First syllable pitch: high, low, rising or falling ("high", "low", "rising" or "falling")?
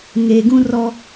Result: low